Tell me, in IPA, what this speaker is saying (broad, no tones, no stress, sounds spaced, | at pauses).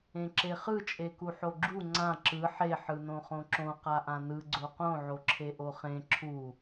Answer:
ẽ ǁ e χ ɯ t͡ʃʼ e k u ħ o ɡ͡ǁ u ŋ͡ǀ ã ǁ ɯ ħ e ħ ɯ n õ χ õ ǁ õ q a ʔ ã n ɯ ɡ͡ǀ o q õ ʕ o ǁʰ e ʔ o χ ẽ ǁʰ u